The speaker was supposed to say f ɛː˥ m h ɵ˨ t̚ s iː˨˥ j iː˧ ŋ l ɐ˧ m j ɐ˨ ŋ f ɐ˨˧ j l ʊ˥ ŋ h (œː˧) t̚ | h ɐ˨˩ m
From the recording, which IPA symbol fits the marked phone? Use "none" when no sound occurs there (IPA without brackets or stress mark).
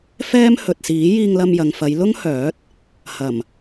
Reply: œː˨˥